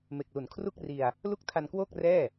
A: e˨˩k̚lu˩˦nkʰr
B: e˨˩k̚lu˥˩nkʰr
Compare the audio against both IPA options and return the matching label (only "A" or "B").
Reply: A